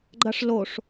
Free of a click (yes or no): no